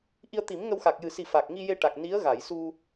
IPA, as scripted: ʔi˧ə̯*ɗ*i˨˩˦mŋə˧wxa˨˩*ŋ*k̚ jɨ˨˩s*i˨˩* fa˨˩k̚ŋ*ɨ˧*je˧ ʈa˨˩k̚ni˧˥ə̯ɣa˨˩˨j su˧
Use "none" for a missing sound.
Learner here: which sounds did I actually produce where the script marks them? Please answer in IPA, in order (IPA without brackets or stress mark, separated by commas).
t̪, none, i˨˩, i˧